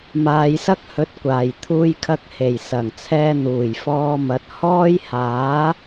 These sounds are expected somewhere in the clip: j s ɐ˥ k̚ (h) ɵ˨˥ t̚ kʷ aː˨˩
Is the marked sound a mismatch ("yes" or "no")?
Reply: no